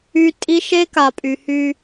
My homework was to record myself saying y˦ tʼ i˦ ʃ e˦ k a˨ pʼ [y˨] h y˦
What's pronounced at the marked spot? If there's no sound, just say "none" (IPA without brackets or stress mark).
y˨